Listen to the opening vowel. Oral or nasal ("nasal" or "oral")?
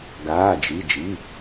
oral